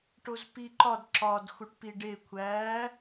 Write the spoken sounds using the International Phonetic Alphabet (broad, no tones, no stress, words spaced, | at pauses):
ʈozpiǃɒd ǁɒd xuʈpiɖe kʷʰæ